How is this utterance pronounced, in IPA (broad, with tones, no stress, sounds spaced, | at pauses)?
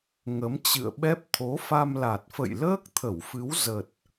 ŋ ə˨˦ m t͡ɕ ɨ̰˧˨ ə̯ ɓ ɛ˦˥ p̚ t̪ʰ o˨˦ f a˧ m l a˨˩ t̚ f ə̰˧˨ j l əː˦˥ k̚ t̪ʰ ə˧˩ w f ɨ˨˦ w z ə˨˩ t̚